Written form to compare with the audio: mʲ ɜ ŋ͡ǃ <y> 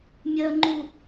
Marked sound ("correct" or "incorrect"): incorrect